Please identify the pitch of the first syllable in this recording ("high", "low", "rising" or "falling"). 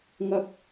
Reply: low